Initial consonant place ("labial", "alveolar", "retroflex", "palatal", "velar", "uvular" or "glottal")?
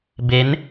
labial